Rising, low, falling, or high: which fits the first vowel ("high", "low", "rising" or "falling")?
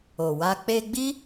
low